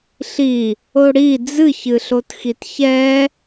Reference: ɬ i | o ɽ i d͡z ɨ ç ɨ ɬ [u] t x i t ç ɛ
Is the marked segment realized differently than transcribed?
yes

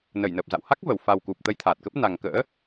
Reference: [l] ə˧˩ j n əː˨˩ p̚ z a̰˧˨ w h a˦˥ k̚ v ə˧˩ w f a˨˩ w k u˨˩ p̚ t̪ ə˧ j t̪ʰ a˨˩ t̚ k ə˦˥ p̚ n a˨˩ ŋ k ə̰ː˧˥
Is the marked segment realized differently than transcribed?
yes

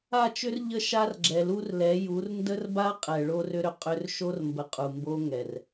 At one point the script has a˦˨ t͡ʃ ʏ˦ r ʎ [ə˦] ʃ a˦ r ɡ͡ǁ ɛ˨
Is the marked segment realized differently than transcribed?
no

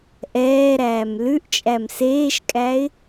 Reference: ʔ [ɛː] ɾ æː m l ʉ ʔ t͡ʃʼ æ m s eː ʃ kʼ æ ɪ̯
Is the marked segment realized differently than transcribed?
no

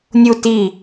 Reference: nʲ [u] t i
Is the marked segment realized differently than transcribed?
no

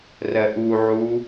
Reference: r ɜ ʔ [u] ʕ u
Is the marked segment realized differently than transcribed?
no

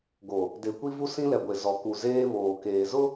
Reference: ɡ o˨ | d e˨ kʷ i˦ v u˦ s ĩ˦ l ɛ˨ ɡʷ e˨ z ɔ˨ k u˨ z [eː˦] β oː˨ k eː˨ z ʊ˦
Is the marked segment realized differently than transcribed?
no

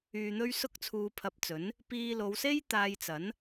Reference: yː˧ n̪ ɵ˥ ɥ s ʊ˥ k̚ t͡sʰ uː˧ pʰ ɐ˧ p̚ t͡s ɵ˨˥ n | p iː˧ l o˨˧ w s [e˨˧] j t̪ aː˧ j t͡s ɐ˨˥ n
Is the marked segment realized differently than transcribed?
yes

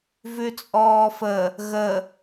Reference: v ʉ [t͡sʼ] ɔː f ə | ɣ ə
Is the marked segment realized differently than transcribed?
no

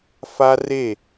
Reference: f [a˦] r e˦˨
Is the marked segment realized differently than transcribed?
no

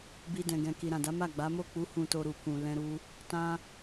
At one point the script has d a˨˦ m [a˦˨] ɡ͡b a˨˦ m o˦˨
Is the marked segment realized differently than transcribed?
no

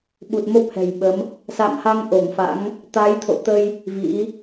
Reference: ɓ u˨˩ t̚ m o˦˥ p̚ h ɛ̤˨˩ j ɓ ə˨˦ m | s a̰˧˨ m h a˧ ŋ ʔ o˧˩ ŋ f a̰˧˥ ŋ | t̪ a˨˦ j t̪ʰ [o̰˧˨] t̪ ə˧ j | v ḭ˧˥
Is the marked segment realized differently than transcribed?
no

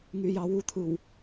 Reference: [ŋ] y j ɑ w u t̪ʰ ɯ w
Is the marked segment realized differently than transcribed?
no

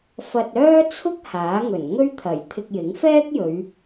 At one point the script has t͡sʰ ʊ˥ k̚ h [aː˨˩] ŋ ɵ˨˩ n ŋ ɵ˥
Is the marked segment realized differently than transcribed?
yes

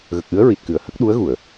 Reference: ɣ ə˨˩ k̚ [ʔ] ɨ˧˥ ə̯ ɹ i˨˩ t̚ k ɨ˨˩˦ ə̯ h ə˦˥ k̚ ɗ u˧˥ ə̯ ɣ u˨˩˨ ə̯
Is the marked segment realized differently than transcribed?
no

